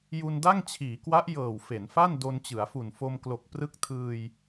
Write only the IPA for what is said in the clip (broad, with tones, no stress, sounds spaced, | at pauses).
j u˧ n d a˥˩ ŋ t͡ɕʰ iː˩˦ k w a˦˥ ʔ j ɤː˨˩ w f e˩˦ n f a˥˩ n d o˧ n t͡ɕ ɯ˩˦ a̯ f u˨˩ n f o˧ m k l o˨˩ k̚ p r ɯ˦˥ k̚ tʰ ɯː˧ j